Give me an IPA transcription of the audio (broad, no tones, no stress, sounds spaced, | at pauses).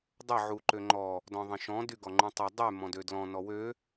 dˤ ə ʕ u ǃ ø ŋ͡ǃ ɔ | d ɔ̃ ðˤ ə̃ ʃ ɔ̃ d y ɡ ɔ ŋ͡ǃ ũ tˤ ʌ dˤ y m ɔ̃ d ø d l ɔ̃ n ɔ w ø